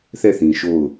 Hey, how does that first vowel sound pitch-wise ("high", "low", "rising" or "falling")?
falling